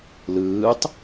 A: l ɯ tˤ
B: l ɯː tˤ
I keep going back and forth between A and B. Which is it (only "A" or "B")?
B